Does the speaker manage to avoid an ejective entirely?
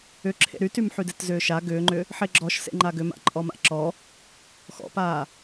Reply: no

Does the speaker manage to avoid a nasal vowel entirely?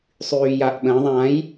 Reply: no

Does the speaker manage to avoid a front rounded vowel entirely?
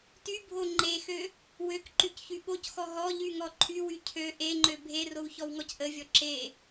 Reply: no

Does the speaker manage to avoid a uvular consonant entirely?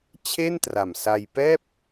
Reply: yes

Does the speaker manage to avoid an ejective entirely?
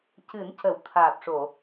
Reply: yes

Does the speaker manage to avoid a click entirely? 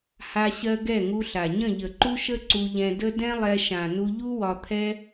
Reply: no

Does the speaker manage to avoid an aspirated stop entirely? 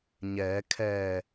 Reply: no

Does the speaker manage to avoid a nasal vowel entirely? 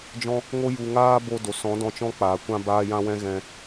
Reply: no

